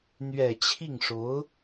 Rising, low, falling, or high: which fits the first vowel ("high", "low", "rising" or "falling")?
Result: low